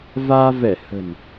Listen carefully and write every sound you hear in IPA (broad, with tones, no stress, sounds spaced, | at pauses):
v aː˧ v ɛ˧˩ h ə̤˨˩ n